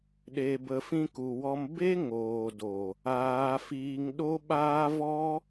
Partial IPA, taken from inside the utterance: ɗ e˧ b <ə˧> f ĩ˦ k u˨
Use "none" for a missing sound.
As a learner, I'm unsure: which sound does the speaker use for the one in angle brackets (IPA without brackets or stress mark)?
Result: ə˧